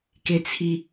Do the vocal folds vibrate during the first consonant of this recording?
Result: no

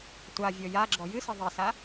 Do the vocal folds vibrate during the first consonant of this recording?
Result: no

